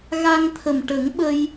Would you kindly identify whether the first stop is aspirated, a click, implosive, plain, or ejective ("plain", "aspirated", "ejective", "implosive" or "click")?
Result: aspirated